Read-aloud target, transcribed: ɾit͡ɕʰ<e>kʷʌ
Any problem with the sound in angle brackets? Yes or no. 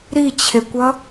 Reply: no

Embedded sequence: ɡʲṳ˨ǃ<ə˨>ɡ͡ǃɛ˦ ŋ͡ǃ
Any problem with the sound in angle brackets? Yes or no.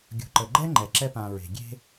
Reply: no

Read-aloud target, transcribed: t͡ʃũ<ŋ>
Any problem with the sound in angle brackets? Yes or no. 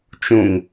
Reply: no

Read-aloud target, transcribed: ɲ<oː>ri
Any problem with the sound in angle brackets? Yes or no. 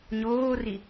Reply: no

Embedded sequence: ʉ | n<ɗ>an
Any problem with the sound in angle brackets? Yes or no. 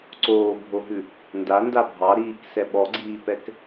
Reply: yes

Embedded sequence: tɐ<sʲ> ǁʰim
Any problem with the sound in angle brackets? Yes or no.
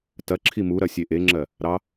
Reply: yes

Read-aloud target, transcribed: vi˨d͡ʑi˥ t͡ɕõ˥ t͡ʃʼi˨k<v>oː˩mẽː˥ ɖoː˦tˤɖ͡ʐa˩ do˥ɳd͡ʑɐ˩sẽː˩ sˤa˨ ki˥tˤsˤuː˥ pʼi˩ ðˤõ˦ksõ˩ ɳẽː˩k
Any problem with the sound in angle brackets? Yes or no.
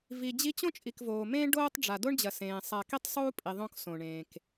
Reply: no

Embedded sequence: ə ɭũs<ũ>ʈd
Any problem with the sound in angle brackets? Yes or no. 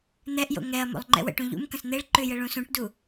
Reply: no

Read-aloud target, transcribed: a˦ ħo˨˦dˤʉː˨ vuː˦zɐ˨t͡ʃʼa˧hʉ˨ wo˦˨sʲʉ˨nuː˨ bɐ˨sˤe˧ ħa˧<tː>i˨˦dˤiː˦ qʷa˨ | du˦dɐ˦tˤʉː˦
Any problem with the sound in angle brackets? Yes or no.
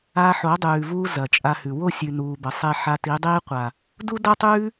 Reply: yes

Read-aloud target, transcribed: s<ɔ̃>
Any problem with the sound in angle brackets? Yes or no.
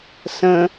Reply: yes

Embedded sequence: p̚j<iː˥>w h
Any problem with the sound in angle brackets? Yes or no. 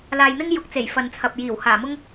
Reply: yes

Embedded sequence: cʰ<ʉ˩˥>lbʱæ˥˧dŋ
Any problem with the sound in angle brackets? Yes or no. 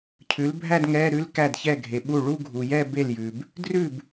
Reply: no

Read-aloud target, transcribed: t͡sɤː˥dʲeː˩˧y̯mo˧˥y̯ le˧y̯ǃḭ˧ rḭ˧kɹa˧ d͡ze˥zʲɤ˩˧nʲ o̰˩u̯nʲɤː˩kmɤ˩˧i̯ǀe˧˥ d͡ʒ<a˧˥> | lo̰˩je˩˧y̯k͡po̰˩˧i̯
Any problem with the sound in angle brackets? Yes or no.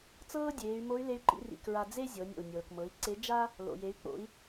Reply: yes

